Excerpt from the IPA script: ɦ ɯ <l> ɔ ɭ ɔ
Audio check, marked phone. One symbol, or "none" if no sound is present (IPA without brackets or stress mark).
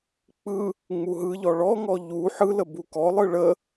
ʎ